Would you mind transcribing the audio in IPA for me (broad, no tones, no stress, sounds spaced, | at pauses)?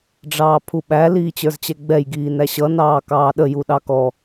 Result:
ɖ͡ʐ ɑː pʰ u ɓ æ l iː t͡ɕ ə˞ z t͡ɕ ɛ ɡ͡b ɛ j ɡ iː n æ ɕ ʌ n ɑː k ɑː ɗ ə j u ɗ ɑ k ɔ